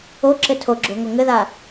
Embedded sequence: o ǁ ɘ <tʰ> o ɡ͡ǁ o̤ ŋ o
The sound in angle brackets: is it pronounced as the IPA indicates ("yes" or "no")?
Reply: yes